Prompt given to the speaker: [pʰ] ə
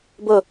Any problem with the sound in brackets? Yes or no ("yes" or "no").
yes